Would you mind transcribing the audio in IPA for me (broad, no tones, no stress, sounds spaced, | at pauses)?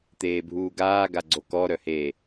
t̪ eː bʱ uː ɡ aː ɡ a ɡ͡ǀ o k ɔ ɾ œ h e